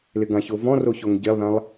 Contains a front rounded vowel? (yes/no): no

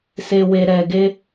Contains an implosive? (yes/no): no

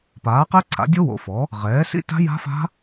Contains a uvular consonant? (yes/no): yes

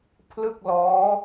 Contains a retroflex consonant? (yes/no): no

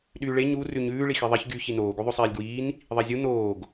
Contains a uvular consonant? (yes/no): no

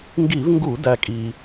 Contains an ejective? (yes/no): yes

